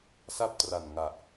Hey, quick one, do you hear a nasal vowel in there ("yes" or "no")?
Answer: no